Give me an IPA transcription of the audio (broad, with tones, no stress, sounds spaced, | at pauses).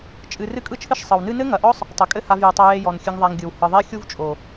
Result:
t͡ʃʼ ɨ˧ r ɨ˦ kʼ ɯ˦ t͡ʃʰ ɨ˦ ʃ sˤ ɯ˨ w n ɨ˦ n ɘ˦ ŋ ɐ˨ ʔ ɔ˦ sˤ | tˤ ɘ˨ kʼ ɘ˦ h a˧ v j ɨ˨ tˤ ɐ˧ j e˧ j ɔ˨ n xʲ ɨ˧ ŋ ðˤ a˧ ŋ ɡʲ ɯ˨ w h ɯ˨ ðˤ e˦ xʲ u˦ v t͡ʃʼ o˨